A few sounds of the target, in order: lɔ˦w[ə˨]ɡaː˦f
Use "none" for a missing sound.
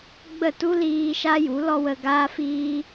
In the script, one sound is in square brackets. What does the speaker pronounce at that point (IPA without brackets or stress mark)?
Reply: ə˧